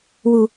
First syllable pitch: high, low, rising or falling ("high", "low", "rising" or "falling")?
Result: high